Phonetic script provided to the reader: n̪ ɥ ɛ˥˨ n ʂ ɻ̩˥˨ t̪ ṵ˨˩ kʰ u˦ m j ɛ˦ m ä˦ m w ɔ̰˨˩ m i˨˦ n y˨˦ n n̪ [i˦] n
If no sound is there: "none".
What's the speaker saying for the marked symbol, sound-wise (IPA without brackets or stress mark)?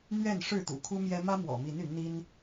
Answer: i˦